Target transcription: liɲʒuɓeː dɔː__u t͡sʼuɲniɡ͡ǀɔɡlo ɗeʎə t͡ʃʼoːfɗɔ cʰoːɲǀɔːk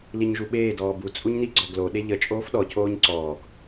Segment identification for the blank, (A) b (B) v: A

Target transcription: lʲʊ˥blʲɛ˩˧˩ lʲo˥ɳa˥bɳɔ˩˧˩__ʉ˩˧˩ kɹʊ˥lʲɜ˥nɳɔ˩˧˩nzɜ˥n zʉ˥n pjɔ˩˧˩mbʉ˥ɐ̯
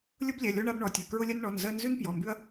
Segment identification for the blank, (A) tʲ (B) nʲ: A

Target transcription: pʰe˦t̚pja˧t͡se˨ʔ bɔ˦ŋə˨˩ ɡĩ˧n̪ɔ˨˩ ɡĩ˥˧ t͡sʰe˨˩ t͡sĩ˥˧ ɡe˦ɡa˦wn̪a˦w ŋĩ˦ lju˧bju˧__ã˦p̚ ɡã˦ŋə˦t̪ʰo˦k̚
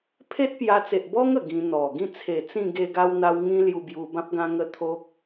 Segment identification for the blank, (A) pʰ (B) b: B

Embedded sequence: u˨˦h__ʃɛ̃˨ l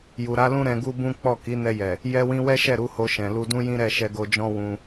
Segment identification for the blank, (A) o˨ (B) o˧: B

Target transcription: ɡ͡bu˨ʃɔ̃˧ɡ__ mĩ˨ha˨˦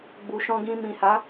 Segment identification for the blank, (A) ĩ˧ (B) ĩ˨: A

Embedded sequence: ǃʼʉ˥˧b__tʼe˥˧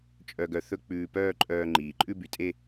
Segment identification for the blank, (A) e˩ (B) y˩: B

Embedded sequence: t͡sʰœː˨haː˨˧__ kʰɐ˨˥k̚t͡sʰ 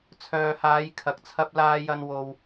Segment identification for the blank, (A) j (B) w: A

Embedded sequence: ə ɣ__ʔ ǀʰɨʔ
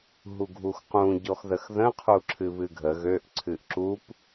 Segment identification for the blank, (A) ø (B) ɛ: A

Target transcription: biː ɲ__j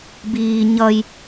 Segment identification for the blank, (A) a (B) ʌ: B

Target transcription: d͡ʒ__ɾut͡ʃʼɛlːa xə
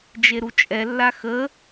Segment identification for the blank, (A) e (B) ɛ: A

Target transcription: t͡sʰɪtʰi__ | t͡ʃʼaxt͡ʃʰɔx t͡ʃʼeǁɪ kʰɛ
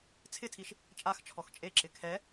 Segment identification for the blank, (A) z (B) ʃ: B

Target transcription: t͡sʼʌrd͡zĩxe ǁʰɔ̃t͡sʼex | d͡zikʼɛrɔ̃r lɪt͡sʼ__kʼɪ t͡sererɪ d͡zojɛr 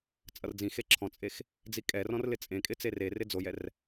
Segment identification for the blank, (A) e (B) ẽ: B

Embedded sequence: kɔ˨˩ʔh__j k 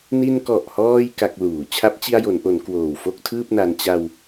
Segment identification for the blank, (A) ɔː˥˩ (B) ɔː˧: B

